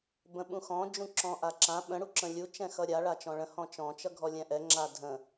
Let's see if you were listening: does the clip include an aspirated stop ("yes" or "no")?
no